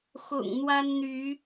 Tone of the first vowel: low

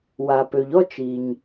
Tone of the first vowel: low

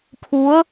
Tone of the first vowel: rising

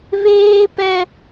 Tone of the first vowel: high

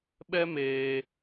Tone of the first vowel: high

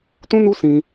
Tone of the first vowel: high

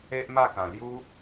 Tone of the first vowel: high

